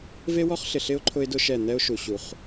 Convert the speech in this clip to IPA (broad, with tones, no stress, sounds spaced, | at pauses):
v e˦ w ɔ˦ χ ɬ ɪ˨ ɬ ɪ˦ ʊ̯ ǃʰ ʊ˦ ɪ̯ d ʊ˦ ʃ ɛ˦˨ n̪ ɛ˦ ʊ̯ ʃ u˨ ɕ u˨ χ